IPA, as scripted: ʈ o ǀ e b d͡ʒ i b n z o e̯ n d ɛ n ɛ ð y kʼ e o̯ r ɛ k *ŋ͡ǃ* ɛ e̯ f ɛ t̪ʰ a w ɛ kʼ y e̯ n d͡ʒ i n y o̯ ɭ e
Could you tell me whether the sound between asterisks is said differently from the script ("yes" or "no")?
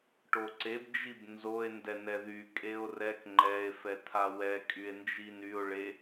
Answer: no